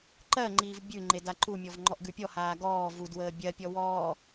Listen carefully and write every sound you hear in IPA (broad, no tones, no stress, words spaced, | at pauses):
ǃɜ ŋ͡ǃiːvbʲʉŋ͡ǃe daǃumʲɔv ŋ͡ǃɔʔɡʉpʲɔ haːɡɔː vud wəːbʲɜpʲɔ wɔː